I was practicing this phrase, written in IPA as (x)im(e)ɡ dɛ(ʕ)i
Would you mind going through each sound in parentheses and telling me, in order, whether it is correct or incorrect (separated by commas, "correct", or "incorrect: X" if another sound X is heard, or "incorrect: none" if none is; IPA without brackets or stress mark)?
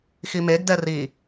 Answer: correct, correct, incorrect: r